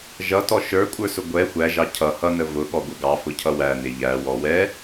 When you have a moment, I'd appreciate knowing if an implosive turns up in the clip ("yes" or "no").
yes